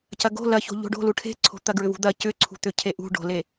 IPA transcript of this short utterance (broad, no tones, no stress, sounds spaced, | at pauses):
c ɐ ɡ o̤ l ɐ ç o̤ ʎ o̤ ɖ o̤ l u ʈʰ e̤ ǀʰ o̤ t̪ ɐ ɡ ɹ ʏ v ṳ d̪ ɐ c ʏ ǀʰ ṳ t̪ ʏ cʰ e ʔ ṳ ɖ o̤ l e